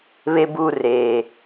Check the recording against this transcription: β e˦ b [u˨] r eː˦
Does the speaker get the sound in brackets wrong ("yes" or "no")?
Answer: yes